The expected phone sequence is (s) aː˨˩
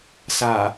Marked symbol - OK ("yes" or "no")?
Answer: yes